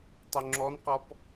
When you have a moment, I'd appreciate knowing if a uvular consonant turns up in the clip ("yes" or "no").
yes